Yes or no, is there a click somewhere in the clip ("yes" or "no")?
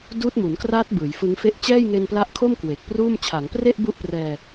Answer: no